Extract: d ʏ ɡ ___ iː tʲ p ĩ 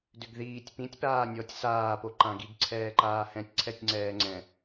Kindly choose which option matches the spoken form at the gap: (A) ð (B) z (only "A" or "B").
A